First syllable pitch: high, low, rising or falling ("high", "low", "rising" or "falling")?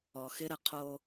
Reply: low